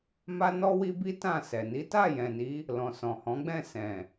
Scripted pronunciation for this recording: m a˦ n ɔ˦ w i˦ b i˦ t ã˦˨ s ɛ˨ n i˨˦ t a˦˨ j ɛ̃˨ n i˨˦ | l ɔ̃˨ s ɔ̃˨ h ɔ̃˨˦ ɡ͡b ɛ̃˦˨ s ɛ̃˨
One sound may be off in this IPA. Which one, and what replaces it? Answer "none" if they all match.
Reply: none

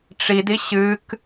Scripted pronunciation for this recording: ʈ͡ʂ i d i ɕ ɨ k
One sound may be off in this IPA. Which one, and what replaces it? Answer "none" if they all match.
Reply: none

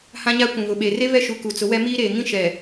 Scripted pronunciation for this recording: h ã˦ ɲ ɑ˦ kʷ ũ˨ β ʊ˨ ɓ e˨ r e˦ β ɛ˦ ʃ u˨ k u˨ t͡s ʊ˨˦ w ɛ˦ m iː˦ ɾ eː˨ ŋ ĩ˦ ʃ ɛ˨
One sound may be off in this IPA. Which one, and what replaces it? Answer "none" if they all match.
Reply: ɑ˦ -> a˦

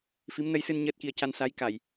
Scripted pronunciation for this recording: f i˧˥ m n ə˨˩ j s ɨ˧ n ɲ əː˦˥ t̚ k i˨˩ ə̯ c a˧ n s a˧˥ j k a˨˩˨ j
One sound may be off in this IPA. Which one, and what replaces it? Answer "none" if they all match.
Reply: ə˨˩ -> ə˧˥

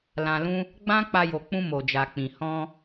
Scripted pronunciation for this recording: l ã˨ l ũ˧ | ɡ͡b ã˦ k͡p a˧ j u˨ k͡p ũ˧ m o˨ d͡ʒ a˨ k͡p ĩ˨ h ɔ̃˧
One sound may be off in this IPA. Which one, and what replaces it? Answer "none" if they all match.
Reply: u˨ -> o˨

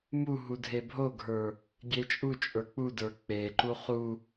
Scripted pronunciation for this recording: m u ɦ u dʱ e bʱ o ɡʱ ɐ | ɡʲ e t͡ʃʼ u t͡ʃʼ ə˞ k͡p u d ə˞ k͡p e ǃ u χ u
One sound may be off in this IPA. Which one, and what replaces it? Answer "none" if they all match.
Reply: ɐ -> ə˞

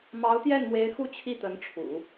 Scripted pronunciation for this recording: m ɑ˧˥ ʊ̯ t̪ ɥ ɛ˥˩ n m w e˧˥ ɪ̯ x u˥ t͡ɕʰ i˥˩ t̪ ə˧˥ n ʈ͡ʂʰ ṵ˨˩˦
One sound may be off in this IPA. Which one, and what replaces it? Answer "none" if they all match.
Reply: ɥ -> j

